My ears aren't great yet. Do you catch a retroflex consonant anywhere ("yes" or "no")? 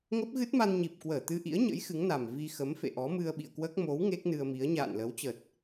no